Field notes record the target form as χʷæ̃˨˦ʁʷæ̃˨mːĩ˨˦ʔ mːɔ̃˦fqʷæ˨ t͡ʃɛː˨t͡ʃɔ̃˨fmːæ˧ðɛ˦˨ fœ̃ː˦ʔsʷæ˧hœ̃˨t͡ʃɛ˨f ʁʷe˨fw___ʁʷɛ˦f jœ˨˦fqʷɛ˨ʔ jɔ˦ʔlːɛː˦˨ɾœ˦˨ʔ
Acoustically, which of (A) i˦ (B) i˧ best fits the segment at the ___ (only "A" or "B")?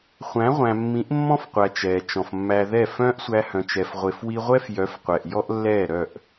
B